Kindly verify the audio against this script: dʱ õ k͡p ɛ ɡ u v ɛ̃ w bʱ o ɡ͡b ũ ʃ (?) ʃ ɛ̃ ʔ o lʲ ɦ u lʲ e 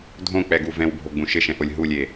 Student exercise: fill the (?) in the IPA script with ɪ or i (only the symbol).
ɪ